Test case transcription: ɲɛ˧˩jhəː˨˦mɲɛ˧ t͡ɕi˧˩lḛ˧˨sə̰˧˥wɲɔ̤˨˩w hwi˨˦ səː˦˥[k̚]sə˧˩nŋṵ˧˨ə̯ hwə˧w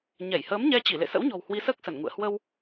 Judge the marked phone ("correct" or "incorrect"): correct